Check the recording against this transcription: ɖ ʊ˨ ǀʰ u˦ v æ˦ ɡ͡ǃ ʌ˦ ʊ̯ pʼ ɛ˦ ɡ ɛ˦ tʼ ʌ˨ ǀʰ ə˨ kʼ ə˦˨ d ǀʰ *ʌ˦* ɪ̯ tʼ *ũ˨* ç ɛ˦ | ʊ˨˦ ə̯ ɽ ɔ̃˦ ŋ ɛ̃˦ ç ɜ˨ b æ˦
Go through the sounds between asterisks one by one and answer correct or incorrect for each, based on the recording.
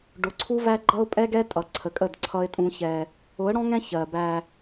correct, incorrect

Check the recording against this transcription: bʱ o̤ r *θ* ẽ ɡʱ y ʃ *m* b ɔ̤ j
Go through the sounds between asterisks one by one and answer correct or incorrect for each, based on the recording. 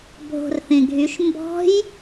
correct, correct

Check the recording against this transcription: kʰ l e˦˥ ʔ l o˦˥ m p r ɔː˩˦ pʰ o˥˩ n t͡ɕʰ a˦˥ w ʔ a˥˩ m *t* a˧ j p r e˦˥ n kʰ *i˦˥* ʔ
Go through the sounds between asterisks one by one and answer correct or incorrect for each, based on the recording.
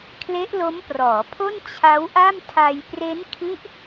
incorrect, correct

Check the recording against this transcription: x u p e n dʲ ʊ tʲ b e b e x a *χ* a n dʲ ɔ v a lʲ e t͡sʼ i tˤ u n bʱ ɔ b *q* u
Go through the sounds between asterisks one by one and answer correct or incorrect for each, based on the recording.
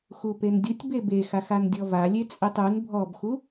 incorrect, incorrect

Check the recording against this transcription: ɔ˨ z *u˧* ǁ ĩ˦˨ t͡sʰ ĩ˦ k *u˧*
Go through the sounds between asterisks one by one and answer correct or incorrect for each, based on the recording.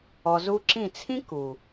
correct, incorrect

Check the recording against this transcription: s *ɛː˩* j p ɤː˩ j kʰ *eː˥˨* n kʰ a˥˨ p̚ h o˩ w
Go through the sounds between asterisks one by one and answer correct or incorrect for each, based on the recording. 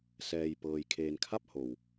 correct, incorrect

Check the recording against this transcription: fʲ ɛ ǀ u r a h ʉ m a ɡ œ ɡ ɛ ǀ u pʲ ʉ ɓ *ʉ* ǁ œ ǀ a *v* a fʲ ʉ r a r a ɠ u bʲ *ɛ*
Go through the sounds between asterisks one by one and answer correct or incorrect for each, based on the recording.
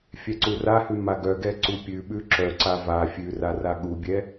correct, correct, correct

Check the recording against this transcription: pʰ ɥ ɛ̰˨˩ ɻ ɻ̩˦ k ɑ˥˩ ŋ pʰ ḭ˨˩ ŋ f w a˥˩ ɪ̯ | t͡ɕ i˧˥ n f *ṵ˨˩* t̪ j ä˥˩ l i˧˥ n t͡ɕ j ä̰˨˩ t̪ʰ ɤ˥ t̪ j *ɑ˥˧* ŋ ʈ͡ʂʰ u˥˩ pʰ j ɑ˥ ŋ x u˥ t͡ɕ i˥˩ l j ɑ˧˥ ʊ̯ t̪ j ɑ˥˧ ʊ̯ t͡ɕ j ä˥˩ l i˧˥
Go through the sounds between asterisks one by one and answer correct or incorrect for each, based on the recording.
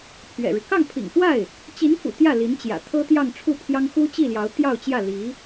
correct, correct

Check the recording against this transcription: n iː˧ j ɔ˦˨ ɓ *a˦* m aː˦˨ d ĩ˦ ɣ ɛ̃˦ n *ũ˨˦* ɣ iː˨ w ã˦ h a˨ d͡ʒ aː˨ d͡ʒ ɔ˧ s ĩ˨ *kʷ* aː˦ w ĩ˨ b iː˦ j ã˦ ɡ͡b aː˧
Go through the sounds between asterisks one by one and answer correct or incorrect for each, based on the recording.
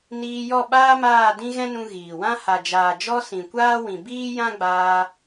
incorrect, incorrect, correct

